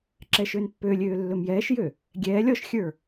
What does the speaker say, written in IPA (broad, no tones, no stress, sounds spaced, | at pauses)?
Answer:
ǁ ɛ ʃ ø n pː ø lʲ øː lː ɵ m j ɛː ʃ j ø | ɡʲ ɛː lʲ ɔ ʃ xʲ ə˞